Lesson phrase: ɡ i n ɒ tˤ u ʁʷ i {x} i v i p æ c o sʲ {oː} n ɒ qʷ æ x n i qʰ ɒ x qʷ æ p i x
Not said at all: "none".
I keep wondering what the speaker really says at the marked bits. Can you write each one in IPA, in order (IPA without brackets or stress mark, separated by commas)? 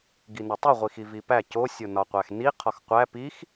x, o